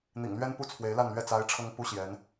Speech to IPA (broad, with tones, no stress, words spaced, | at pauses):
n̪ḭ˨˩ŋlɥɛ˥npu˥˩ t͡sʰwe˧˥ɪ̯la˥˧nlɥɛ˥˩ t͡sa˧˥ɪ̯ ʈ͡ʂʰɤ˥ŋpu˥ ɕjɛ˧˥n